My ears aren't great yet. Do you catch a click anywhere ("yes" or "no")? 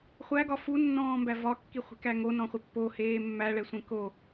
no